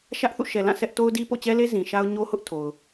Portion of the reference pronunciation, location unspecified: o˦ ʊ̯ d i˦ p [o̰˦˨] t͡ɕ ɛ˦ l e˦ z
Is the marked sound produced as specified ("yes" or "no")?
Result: yes